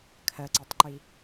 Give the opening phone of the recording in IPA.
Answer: kʰ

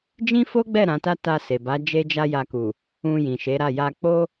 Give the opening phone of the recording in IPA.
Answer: d͡ʒ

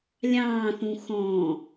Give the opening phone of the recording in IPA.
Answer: lʲ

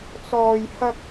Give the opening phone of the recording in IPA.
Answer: t͡s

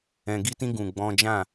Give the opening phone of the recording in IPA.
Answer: ɛ̃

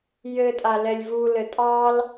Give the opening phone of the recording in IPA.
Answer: j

